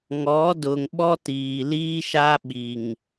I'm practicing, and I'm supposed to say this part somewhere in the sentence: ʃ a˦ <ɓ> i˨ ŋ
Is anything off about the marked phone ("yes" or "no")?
no